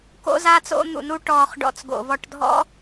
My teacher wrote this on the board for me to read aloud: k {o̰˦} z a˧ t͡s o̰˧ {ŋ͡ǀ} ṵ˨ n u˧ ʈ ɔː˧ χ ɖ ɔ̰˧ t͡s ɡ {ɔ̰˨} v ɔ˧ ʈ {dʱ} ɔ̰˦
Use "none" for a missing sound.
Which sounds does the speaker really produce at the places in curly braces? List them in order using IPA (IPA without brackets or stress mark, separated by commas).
o̰˧, n̪, o̰˨, dʱ